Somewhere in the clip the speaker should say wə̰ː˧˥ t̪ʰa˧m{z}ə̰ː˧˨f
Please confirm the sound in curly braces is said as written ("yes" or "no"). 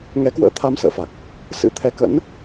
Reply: no